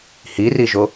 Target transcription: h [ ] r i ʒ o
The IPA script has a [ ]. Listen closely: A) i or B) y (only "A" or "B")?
A